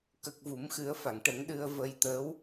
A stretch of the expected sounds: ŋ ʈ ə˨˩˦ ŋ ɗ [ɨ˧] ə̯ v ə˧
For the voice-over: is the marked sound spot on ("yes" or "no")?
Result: yes